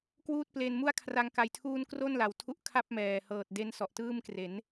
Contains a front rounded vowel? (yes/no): no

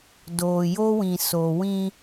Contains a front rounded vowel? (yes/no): no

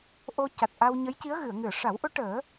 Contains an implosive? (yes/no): no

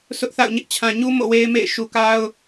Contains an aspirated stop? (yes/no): yes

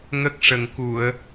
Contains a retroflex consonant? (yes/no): yes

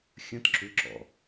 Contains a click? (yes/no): yes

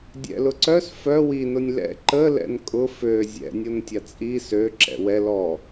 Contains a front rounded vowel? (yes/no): yes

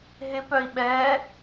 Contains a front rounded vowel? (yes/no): yes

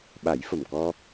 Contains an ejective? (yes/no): no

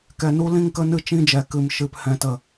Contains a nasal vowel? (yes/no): yes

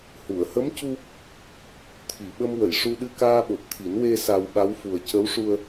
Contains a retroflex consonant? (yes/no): yes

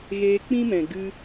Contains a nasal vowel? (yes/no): yes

